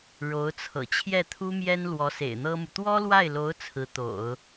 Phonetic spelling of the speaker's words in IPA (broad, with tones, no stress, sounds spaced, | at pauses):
ɻ o˧˥ ʊ̯ t͡sʰ ɤ̰˨˩ t͡ɕʰ j ɛ˥˩ t̪ʰ u˥ m j ɛ˥ n l w ɔ˧˥ s ḛ˨˩ ɪ̯ n̪ ɤ˥ m u˨ t̪ w ɔ˥ l w a˥˩ ɪ̯ l o˧˥ ʊ̯ t͡sʰ ɹ̩˧˥ t̪ o̰˨˩˦ ʊ̯